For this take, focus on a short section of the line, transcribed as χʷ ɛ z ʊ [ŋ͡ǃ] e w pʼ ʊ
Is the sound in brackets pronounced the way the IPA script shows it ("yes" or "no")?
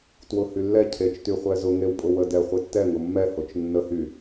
no